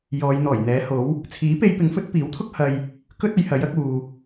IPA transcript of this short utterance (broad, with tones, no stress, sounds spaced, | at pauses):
j ɔː˨˧ j n̪ ɔː˨˩ j n̪ ɛː˨˥ h o˨˥ w | t͡sʰ iː˨˥ p e˧ j p ɪ˨˥ ŋ f ɵ˨˥ t̚ p iː˨˥ w t̪ʰ ʊ˥ k̚ h ɐ˨ j | k ɵ˥ t̚ ɐ˨˧ j h ɐ˨˥ j ɐ˧ k̚ uː˨